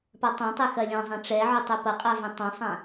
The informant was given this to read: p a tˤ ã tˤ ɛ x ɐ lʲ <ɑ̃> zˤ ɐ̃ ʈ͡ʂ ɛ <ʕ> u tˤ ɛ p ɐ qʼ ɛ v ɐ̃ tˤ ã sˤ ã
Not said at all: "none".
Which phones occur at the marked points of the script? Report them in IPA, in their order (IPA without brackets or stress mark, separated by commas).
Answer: ɔ̃, ʕ